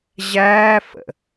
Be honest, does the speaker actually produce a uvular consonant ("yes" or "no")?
no